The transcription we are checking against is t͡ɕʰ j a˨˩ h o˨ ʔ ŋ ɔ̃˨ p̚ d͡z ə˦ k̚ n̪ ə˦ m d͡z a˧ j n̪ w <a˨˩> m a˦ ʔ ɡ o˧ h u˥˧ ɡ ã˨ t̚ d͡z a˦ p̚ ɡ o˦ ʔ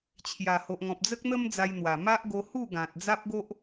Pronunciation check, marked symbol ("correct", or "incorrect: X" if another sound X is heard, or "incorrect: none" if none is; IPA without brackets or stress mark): correct